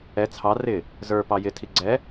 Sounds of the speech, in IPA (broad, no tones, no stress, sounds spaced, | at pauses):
ɛ t͡sʰ ɑ r ɪ | z ə˞ p ɑ j ɪ tʰ i ɡ͡ǀ ɛ